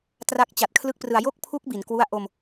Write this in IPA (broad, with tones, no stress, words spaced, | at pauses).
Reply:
tra˦˥k̚t͡ɕa˨˩t̚kʰlɯ˥˩k̚prɯ˧a̯ jo˥˩k̚pʰu˦˥k̚ bi˩˦nkwu˥˩a̯ ʔo˧m